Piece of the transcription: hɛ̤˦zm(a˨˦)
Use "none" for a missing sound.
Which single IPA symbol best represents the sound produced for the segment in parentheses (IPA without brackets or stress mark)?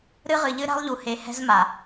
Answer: a˨